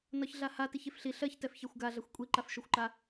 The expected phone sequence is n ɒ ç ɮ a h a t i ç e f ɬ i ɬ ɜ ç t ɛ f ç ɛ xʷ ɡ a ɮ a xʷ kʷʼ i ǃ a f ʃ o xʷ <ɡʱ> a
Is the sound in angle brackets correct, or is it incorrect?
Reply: incorrect